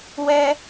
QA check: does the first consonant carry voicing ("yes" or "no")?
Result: yes